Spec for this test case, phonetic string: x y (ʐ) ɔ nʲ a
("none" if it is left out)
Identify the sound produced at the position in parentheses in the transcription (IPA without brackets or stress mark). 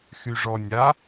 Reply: ʐ